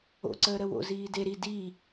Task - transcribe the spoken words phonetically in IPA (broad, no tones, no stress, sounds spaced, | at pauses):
o̰ ǀ əː ɾ ə w o̰ z iː d e ɾ i d iː